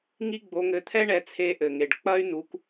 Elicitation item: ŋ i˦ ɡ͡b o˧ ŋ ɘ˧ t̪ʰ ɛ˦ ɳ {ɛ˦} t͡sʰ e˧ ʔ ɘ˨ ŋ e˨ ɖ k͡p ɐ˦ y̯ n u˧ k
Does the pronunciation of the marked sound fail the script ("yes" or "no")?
yes